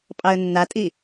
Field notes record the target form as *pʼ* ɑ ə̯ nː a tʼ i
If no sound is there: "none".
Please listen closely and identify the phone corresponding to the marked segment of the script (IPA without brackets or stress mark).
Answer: pʼ